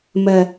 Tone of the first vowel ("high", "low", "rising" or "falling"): low